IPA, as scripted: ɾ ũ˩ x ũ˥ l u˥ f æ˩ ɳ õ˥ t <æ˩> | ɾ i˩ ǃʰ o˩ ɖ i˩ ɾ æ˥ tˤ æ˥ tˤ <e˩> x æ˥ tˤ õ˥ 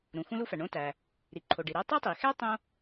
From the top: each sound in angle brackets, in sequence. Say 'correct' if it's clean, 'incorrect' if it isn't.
correct, incorrect

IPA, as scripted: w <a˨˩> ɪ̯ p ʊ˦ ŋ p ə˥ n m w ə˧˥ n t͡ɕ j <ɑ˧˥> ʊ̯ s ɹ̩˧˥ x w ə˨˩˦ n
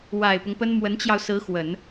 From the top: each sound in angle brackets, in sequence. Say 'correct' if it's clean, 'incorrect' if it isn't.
correct, incorrect

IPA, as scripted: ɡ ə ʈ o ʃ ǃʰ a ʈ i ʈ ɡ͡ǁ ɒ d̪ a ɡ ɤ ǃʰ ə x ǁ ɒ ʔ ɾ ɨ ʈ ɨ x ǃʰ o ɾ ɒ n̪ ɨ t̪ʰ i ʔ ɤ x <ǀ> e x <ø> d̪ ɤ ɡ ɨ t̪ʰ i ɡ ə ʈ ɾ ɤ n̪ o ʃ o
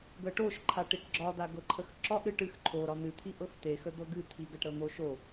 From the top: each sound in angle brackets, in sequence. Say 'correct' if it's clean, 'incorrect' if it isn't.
incorrect, incorrect

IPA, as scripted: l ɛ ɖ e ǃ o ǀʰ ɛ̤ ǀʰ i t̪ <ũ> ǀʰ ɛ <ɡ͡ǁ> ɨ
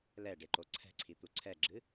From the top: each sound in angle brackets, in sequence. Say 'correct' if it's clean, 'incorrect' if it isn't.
incorrect, correct

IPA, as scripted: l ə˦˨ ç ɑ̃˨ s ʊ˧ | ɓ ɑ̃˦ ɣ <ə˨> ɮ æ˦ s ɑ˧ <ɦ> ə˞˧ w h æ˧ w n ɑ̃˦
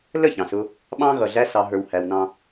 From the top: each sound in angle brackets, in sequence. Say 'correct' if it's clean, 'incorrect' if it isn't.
incorrect, correct

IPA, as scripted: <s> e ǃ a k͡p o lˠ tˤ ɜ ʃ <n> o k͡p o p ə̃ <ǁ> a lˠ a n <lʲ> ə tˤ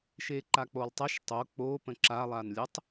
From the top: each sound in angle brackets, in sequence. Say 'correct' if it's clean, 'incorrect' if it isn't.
incorrect, incorrect, correct, correct

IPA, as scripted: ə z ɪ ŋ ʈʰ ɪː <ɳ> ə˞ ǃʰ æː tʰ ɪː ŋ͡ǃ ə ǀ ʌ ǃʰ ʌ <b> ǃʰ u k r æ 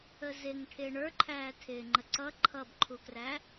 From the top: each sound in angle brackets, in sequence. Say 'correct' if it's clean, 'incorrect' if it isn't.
correct, correct

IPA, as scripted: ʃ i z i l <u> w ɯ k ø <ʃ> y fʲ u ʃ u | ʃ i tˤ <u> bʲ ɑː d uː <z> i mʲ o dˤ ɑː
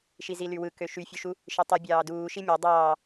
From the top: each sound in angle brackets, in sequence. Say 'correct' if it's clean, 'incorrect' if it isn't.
incorrect, correct, incorrect, incorrect

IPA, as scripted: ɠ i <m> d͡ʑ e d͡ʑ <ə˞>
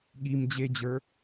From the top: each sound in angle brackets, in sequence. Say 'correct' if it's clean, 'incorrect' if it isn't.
correct, correct

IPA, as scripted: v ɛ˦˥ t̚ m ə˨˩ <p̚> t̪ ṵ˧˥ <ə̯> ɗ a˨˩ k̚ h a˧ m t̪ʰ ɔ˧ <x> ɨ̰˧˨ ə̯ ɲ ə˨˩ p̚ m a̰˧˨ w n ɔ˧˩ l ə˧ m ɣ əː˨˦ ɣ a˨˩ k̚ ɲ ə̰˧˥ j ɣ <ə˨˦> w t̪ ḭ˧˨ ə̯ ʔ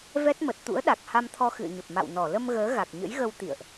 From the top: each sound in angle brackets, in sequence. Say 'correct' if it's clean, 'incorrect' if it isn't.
incorrect, correct, correct, incorrect

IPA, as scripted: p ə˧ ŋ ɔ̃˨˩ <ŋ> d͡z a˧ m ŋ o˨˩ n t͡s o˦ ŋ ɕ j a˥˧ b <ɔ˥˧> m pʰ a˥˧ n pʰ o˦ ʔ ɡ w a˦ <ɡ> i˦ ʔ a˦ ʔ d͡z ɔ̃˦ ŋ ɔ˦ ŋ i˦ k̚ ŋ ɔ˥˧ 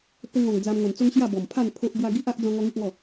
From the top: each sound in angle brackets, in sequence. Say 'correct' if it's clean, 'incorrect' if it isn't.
correct, incorrect, correct

